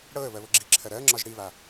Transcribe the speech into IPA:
ɽ ɤ ə̯ β ɜ β ɤ ɡ͡ǁ i ǁʰ ɜ ɾ ɜ ŋ͡ǁ ɒ ʒ ɽ i β a

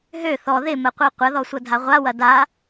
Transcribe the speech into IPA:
ɦ ø θ ɔ ð ɪ m ə qʷ ɜ qʷ ɐ ð ɔ sʷ ɐ dʱ a ʁʷ a w ɐ d a

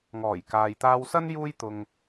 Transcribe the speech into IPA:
ŋ ɔː˨˩ j k aː˨ j t̪ aː˧ w s ɐ˥ n j uː˧ j t̪ ʊ˨ ŋ

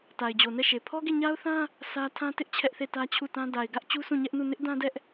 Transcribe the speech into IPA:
t a˨ ɪ̯ d͡ʑ o˨ n ɛ˦˨ ʃ e˨ pʰ ɔ˦ ɡ e˦˨ ɲ a˦ ʊ̯ θ ã˦ | sʰ ä˦ tʰ ã˦ t ɪ˦ ʔ t͡ɕʰ ɛ˦ ʔ θ e˦˨ t ä˦ t͡ɕʰ u˦˨ t ã˦ d a˨ ɪ̯ ɡ ä˦ ʔ t͡ɕ u˦ sʰ ũ˦˨ ɲ ɛ˦ ʔ n u˦˨ n ɪ˦ ʔ d ã˦ d ɛ˦ ʔ

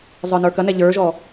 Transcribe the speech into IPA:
zˤ ə˞ n ə˞ k ɐ n ɛ ʎ ə˞ ʒ ɔ

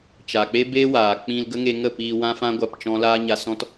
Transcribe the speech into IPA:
t͡ʃ a˨ k͡p e˦ b eː˦ w aː˨ k͡p ĩ˧ l ɡ ə˦ ŋ e˧ ŋ ə˦˨ p iː˧ w ã˦ f ã˦ ɡʷ a˦˨ p t͡ʃ ɔ̃˦ l aː˦ ɲ a˧ s ɔ̃˦ t

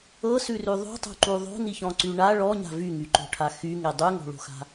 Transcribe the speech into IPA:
ɤ s ʉ r ʉ ðˤ ṳ tˤ ṳ ǃ u ðˤ o̤ n i ç ɔ̃ ǀ y ɳ a ɭ ɔ ɲ a̤ v y ŋ y ǃ o̤ ʈʰ a x y ŋ e dˤ ʉ ŋ o̤ ɭ o̤ x a̤

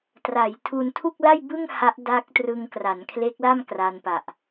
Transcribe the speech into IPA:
t r a˩˦ j tʰ u˧ n tʰ u˥˩ k̚ l a˥˩ j b ɯ˥˩ ŋ h a˦˥ ʔ d a˦˥ k̚ t r ɯ˧ ŋ k r a˩˦ n kʰ l e˦˥ k̚ l a˥˩ m k r a˧ n p a˨˩ ʔ

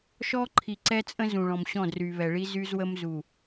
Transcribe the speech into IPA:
ʃ ɔ˦ ǃʰ i˨ ǀ ɛ˦ t͡sʼ ə̃˦ z ũ˨ ɭ ɔ̃˨ m ɕ ɔ̃˦˨ d r y˨ β ɛ˨ ɭ i˦ z y˦ z w ə˦ m z u˨

